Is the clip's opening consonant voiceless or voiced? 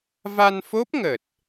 voiced